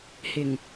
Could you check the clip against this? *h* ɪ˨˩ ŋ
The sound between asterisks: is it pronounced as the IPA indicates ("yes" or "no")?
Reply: yes